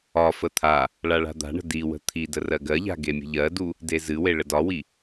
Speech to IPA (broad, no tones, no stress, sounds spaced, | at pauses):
ɒ f ə t̪ʰ a | ɭ a ɭ a̤ d̪ a̤ ɳ ə̤ d i w ə̤ t̪ʰ i d ə r ɜ ɡ ɜ ʎ a̤ ɡ e mʲ ə̤ ʎ ɜ d u | d e z ɨ w e ɭ ə d ɒ w i